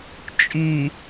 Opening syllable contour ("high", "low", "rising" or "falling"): low